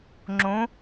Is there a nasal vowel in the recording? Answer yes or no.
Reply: yes